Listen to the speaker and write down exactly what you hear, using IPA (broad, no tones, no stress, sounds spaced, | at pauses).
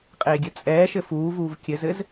qʼ eː ɡʲ ɘ t͡sʼ ɛː ʃ ɘ f uː v uː v kʲ ɘ z ɘ z